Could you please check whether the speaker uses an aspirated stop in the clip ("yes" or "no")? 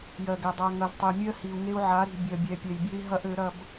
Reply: no